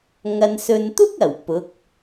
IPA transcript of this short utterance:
ŋ ɐ˨ n s ɵ˨ n t̪ ʊ˥ k̚ ɐ˨˩ w p ʊ˨˥ k̚

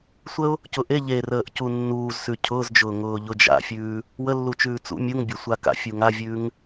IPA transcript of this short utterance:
sʷ ə ʊ̯ | c ʊ ʔ e ʎ e r əː ʔ c u nː uː z s ʉ cʰ ʊː z d͡ʒ ʊː ŋ ʊː ʎ ʊ d͡ʒ a̰ fʲ ʉː | w ə lː u t͡ʃ ʉː t͡s ṵ mʲ u ŋ bʲ a sʷ a k a̰ fʲ u ŋ a vʲ ʉː ŋ

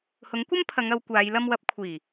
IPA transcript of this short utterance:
h ʊ˨˥ ŋ kʷ ɐ˥ m pʰ ɐ˨˧ ŋ ɐ˨˧ w kʷ aː˨˧ j l ɐ˧ m w ɐ˨˥ p̚ kʷʰ iː˨˩

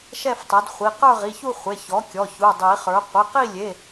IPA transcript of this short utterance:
ʃ ɛ˥˧ f tˤ ɛ˩˥ d χʷ i˩˧˩ q ə˞˥˧ ʁ i˩˧˩ ç u˥˧ χʷ e˩˧˩ ç ɔ˩˥ kʲ ɔ˩˧˩ ç u˩˧˩ dˤ i˨˩˦ χ ə˞˩˥ qʷ i˩˧˩ q i˥˧ lʲ e˩˧˩

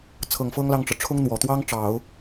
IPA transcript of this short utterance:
t͡sʰ ɤ˨˩ ŋ f ɤ˥ ŋ l ɑ˥˩ ŋ ʈ͡ʂ ɤ˩ ʈ͡ʂʰ ʊ˥ ŋ n̪ w ɔ˨˩ t̪ w ɑ˥ ŋ ʈ͡ʂ ɑ˨˩˦ ʊ̯

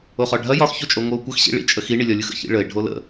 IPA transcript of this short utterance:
o χ ɒ ɖʱ ɐ j ɒ x ç o t͡ʃʼ o ŋʷ ɯ o̯ kʷ ɐ x ɕ ḭ ɭ ḭ t͡ʃʼ ə x i ɳ i lʲ ɒ lʲ ɯ x ə̰ ç ḭ ɭ ə e̯ ɖʱ o l ə̰

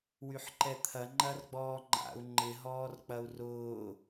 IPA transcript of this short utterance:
w y ħ ǃ ɛ t̪ʰ ɐ ŋ͡ǃ ɐ r ɡ͡b ɔː ŋ͡ǃ a̰ u̯ ŋ͡ǃ ɪ ɦ ɔː r k͡p ɐ u̯ r ʊː

